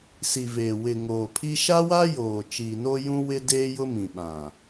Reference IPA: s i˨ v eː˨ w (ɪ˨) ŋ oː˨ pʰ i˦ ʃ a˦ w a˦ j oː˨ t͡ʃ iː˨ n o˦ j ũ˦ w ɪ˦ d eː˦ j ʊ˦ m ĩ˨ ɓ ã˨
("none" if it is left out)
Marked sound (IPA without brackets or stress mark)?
ɪ˨